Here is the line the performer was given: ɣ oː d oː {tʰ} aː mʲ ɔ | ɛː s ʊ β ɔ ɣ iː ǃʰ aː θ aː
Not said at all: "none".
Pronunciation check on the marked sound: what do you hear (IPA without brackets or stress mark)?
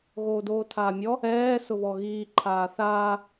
tʰ